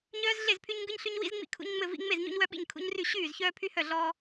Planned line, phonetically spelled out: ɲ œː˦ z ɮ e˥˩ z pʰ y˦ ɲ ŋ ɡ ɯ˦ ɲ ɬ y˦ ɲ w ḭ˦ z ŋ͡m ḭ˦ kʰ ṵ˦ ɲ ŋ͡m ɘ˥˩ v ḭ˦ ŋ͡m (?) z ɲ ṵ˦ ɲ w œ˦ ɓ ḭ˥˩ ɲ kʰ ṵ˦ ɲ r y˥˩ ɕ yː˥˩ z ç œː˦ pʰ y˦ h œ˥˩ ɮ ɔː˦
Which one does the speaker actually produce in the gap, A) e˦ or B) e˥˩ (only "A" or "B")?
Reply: B